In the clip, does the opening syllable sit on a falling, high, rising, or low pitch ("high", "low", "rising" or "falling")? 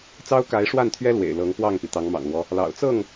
high